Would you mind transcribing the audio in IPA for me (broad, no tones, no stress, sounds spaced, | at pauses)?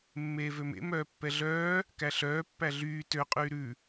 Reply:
mː eː v ø m ḛ m œː pː ɛ ɮ œː | k æ ɬ œː pː æ ɮ yː t ø qʼ yː ɾ ʉ